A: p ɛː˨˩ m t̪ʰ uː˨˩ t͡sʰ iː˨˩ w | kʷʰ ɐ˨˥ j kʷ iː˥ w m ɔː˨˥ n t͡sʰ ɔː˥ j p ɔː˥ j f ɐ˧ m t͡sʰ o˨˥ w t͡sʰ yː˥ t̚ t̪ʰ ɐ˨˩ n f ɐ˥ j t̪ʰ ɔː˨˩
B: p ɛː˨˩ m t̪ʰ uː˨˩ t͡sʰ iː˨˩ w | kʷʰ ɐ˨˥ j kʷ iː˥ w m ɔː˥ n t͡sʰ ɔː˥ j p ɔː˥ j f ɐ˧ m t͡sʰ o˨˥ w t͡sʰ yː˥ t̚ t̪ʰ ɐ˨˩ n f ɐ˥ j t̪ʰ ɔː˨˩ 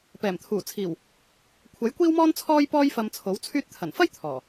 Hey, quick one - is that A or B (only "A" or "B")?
B